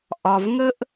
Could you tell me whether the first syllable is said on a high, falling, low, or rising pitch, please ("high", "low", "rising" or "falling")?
low